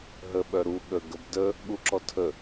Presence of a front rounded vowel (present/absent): present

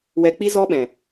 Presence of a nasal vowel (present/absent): present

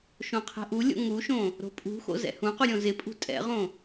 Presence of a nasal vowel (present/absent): present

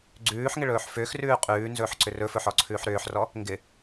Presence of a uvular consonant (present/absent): present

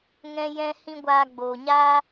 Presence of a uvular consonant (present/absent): absent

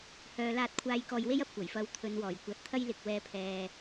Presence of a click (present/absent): absent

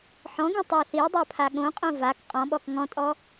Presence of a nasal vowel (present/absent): present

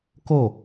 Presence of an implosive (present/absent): absent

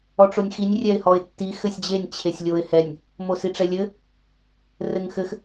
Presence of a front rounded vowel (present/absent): absent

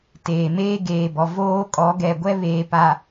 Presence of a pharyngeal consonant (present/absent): absent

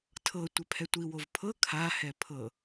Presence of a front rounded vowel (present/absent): absent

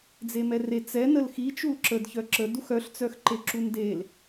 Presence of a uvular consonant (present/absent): absent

